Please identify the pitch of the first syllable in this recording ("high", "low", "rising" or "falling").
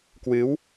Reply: rising